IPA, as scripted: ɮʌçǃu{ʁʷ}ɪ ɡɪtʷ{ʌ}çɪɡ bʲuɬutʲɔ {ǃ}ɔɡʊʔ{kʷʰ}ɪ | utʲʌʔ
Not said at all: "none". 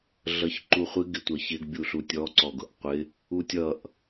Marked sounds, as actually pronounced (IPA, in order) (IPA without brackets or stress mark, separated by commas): χʷ, ʌ, ǀ, qʷ